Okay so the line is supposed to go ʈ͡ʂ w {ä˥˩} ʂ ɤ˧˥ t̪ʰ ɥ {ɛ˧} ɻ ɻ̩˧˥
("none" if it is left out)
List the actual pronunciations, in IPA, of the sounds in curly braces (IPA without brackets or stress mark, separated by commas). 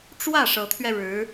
ä˥˩, ɛ˧